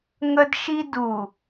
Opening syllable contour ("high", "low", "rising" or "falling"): high